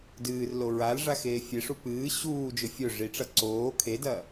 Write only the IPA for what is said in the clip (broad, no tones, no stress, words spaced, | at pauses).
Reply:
dɨːrlo ɹal ʐaxeːfʲeʂu pɨː ɕuːd͡ʒɵ fʲɵ ʐiʈ͡ʂɐ ǀoː kʰedɐː